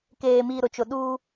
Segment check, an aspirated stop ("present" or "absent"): absent